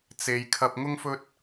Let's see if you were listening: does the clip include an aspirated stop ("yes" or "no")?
yes